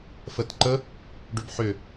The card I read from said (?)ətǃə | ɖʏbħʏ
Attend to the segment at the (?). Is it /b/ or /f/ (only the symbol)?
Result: f